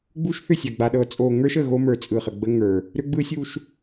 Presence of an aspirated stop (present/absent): absent